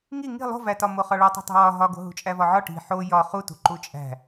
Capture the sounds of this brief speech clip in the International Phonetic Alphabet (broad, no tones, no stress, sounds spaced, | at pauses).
ŋ i ŋ i̤ lˠ o̤ v æ t ɒ m o χ ɒ ɭ u tˤ ṳ tˤ i̤ w ɒ ɦ ɒ ɡ o̤ ɦ ṳ t͡ʃʼ æ v ɒ ʕ ɒ ʈ i̤ ħ o j ɒ χ u t ṳ ǃ u t͡ʃʼ æ̤